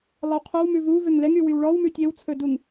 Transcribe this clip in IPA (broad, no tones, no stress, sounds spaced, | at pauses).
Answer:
lˠ ɛ w qʰ ø w m ʉ v u v ø ŋ l ɛ ŋ y w y w ɭ ɔ w m ʉ tʲ e w t͡sʰ ɵ d u ŋ